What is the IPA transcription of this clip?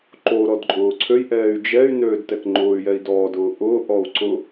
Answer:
ǃ o ɾ ɔ d ǃʼ ʊː ǀʰ ø j ʔ ɛː y̯ d͡ʒ ɛ y̯ n øː d t ɛ k ŋ͡ǃ ʊː y̯ j ɛ i̯ d ɔː d ʊː ʔ ʊː ʔ ɔ u̯ ǀ ʊ

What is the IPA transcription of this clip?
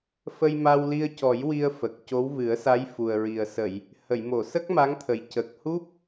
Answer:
f ə˧ j m a˧ w l i˧ ə̯ c ɔ˨˩˦ j w i˧ ə̯ f ə˨˩ k̚ c o˧˥ w v ɨ˨˩˦ ə̯ s a˧˥ j f u˨˩ ə̯ ɹ i˨˩ ə̯ s ə˨˩˨ j | h ə˨˩˨ j m o˨˩˨ s ə˦˥ k̚ m a˧˥ ŋ t̪ʰ ə˨˩ j c ə˨˩ k̚ h u˦˥ p̚

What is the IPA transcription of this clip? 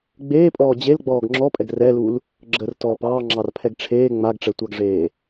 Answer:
ɡ͡b eː pʼ ɔː d͡ʑ e l ɡ͡b ɔː ɡ ŋ͡ǁ ɔ pʼ ɛ ɡ r ɛ l u l | ɡ͡ǁ ə r t ɔː p ɑː ŋ͡ǁ ɑ r pʰ ɛ ɡ ʈ͡ʂʰ eː ŋ͡m a ɡ ʈ͡ʂ ɛ tʷ ɑ ɡ ʐ eː

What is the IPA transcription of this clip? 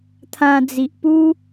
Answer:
t̪ʰ ã˧ d͡z i˨ ʔ p u˦

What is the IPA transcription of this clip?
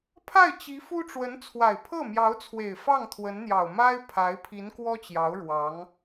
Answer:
pʰ a˥˩ ɪ̯ t͡ɕ i˧˥ f u˥ ʈ͡ʂ w ə˧˥ n t͡sʰ w a˨˩ ɪ̯ pʰ ɤ˥˩ m j ɑ˧˥ ʊ̯ t͡sʰ w e˨˩ ɪ̯ f ɑ˥˩ ŋ t̪ʰ w ə˧˥ n n̪ j ɑ˨˩ ʊ̯ m a˥ ɪ̯ pʰ a˧˥ ɪ̯ pʰ i˧˥ n k w ɔ˥ t͡ɕ j ɑ˧˥ ʊ̯ ɻ w ɑ˧˥ ŋ

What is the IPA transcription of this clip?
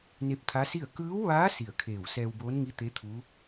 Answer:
n e˧˥ p̚ t̪ʰ a˧˥ s i˥˨ ə̯ k ɯː˧˥ w ʋ aː˧˥ s i˧˩ ə̯ kʰ eː˧˩ w s ɛː˧ w b oː˧˥ n ŋ i˧˥ t̪ e˧˥ t̪ʰ u˧˥

